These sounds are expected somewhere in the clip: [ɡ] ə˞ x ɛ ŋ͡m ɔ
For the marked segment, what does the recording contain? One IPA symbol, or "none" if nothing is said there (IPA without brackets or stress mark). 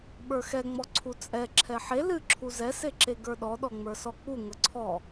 ɓ